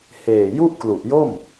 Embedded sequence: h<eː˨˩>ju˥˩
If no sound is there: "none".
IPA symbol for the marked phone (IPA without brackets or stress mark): eː˨˩